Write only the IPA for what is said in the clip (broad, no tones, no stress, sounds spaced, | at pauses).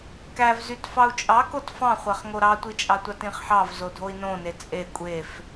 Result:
k æ v z y t f ɑ u̯ t͡ʃʼ ɑ k o t f ɑ̃ χʷ æ χ ŋ o ɾ ɑ tʷ i t͡ʃʼ ɑ tʷ ɑ t ĩ χ ħ ɑ v z o dʱ o i̯ n õ n e t͡sʼ e kʷʼ e f